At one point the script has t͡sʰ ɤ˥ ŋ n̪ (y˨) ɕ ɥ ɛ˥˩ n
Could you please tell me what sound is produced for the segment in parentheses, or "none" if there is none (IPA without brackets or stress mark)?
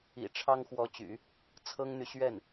y˨